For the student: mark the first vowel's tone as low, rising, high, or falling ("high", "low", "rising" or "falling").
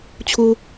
high